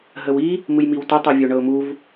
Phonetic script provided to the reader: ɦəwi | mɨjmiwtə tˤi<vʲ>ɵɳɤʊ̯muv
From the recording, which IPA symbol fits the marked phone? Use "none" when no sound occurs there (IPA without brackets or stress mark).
vʲ